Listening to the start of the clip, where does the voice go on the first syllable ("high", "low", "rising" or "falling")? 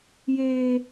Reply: high